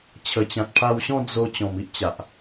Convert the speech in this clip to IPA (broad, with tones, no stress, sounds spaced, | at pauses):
t͡ɕʰ ə˨˩ t͡ɕ ã˨ t̚ pʰ a˧ w ɕ ɔ̃˥˧ d͡z o˧ t͡ɕ ɔ̃˨˩ m i˦ ʔ t͡ɕ a˨ ʔ